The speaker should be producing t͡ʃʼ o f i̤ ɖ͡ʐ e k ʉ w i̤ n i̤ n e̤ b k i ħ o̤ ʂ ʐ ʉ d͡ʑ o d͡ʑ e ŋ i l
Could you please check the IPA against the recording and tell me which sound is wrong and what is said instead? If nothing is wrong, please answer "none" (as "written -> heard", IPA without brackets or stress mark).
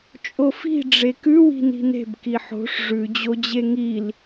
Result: none